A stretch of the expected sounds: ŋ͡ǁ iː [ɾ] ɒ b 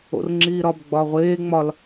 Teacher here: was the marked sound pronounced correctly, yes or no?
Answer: yes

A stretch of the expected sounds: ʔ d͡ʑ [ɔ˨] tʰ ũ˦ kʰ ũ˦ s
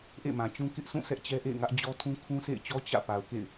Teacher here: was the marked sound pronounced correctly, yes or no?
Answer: no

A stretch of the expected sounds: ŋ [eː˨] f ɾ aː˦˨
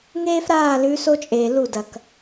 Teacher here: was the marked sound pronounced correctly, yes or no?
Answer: no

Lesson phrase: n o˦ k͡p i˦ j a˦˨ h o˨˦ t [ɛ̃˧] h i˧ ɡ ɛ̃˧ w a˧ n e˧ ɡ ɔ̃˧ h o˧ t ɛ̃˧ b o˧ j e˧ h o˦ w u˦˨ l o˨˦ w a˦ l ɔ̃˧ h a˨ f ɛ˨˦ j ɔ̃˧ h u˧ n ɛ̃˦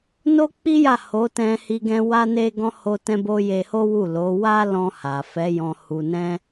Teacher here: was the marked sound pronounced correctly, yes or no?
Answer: yes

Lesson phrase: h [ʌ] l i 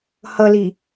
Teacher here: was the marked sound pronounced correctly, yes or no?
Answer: yes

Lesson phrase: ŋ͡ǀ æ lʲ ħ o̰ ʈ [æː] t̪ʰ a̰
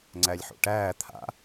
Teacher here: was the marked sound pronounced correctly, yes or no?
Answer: yes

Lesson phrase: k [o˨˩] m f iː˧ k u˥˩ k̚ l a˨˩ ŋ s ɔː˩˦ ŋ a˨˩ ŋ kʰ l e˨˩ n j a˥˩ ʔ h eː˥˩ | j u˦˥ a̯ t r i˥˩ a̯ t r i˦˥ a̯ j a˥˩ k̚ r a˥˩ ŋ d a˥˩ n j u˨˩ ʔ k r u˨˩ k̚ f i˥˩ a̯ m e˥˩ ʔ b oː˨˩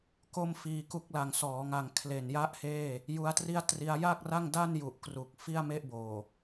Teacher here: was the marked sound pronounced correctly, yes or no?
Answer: no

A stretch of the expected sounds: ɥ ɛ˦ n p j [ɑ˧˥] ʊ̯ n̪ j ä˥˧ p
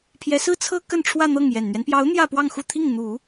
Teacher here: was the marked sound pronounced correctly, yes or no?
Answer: yes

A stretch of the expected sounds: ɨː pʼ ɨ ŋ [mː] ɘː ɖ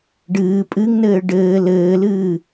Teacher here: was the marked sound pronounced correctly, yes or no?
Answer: no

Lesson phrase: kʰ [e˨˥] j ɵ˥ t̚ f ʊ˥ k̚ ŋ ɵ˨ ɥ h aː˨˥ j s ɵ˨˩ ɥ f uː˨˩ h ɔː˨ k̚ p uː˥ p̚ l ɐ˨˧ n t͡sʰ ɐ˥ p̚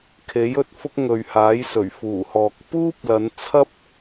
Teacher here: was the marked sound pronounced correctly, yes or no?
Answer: yes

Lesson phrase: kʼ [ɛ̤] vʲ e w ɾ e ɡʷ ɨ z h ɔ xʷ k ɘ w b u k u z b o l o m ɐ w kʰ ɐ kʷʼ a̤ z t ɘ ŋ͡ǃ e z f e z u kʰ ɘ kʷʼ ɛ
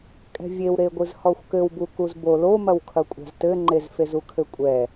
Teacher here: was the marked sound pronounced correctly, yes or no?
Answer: yes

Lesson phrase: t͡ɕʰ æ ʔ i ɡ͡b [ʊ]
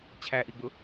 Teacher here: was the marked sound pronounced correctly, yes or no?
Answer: yes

